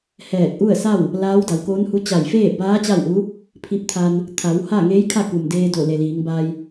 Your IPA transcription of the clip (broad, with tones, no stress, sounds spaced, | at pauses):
h ɛː˧˩ k̚ ʔ u˥˨ ə̯ s a˥˨ w | l aː˧˥ w d a˩˧ w k oː˧˥ n h u˧˥ t͡ɕ a˧˩ j f eː˥˨ b aː˧˥ t͡ɕ a˥˨ w ʔ u˧˥ | pʰ i˧ p̚ t̪ʰ a˧ n | t̪ʰ a˩˧ w h a˥˨ ŋ eː˧˥ j kʰ a˥˨ k u˩ m d eː˧ d o˧˩ l e˩ l iː˩˧ ŋ b a˧ j